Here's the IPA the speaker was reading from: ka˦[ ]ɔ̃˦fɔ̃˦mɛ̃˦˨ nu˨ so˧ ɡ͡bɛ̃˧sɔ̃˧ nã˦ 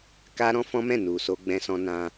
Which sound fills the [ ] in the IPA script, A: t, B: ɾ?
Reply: B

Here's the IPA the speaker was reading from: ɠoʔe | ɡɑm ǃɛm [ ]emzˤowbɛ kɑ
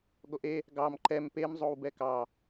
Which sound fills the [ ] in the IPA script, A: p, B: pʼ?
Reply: A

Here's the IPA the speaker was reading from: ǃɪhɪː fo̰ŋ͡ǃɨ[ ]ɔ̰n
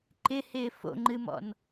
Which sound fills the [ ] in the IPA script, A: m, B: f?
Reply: A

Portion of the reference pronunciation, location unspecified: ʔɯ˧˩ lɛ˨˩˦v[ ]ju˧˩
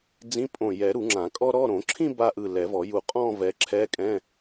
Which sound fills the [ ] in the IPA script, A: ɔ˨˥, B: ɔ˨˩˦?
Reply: B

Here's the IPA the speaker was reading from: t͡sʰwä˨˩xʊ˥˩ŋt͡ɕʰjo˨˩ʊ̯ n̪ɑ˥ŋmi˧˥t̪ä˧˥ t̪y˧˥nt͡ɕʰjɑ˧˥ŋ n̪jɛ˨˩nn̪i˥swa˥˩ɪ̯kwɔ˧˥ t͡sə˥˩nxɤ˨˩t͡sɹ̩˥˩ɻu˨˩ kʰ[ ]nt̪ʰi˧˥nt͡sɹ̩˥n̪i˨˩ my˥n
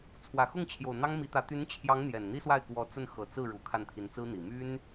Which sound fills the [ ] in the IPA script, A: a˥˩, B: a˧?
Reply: A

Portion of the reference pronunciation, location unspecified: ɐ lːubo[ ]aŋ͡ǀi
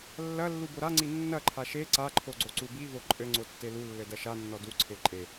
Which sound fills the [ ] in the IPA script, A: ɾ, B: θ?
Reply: A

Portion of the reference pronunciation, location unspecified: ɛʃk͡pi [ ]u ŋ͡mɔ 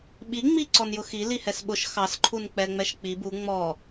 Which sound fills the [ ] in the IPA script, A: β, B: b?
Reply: B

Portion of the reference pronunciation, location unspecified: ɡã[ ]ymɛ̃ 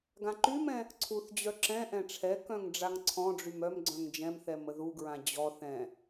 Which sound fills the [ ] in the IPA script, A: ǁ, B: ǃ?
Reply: B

